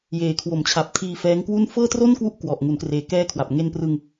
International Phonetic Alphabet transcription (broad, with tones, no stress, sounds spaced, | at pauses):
j eː˩˦ kʰ w o˩˦ m t͡ɕʰ a˨˩ p̚ tʰ iː˧ f ɛː˦˥ ŋ k w u˥˩ n f ɤː˥˩ t r o˥˩ n k w u˦˥ ʔ k w ɔ˨˩ ʔ ŋ u˩˦ n k r eː˨˩ k ɛː˧ kʰ w a˨˩ p̚ ŋ e˧ n p r ɯ˧ ŋ